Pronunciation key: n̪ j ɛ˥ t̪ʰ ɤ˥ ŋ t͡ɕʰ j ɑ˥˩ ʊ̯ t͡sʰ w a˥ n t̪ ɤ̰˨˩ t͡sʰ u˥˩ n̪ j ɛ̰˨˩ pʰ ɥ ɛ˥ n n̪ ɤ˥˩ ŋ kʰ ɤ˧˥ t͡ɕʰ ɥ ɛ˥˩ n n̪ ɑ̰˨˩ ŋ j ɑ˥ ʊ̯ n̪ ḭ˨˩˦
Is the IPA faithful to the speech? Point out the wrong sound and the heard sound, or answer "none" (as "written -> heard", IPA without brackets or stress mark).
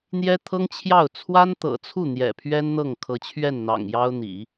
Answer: none